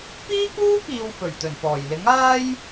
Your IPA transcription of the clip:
piː˥kuː˥kiː˨w fɵ˨˩ɥt̪ɵ˨˩npɔː˨˩jlɪ˨˥ŋ aː˥j

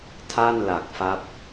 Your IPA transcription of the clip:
tʰa˥˩nla˨˩k̚fa˦˥p̚

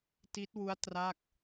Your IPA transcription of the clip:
ti˦˥t̚wu˦˥a̯ tra˥˩k̚

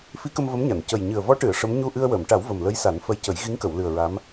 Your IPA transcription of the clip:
fi˧˥kə˧m və˧˥mɲa˨˩˨n cə˨˩jɲɨ˨˩ə̯vɔ˧˥ʈɨ˨˩˨ə̯ ʂə˧˥m ɲu˧ʔɨ˧ə̯wəː˨˩˨mʈa˨˩˦w və˨˩mlə˧˥jsa˨˩˦n fə˧jcə˨˩˦j ɣi˧˥ŋkə˨˩˨wlɨ˨˩ə̯ ɹa˧˥m

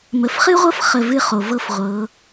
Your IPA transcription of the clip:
mə˨fχɨ˦ʁʷɤ˦f χə˦˨vɨ˦χo˨ vɤ˦fʁʷɤ˨˦

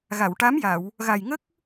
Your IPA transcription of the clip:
ɣa˨˩˨w ʈa˧˥mja˨˩˨w | ɣa˨˩jŋə˦˥k̚

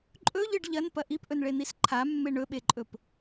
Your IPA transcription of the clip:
ǃʼɵʎɨɖ ʎɐnpɐ ʔipʔɵnɭen̪is ǃʰamːe ɳɵɓeǃʼɵp

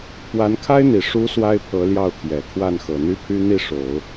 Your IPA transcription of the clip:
pwa˧˥nkʰa˥ɪ̯n̪i˨˩ ʂu˧˥ swa˥ɪ̯pʰɤ˧˥ljɑ˥˩ʊ̯t̪ʰjɛ˨˩ kʰwa˥˩nxɤ˨˩n̪y˥pʰy˥ n̪i˥˩ʂo˨˩˦ʊ̯

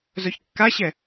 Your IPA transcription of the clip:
zœçkːaɕɛ

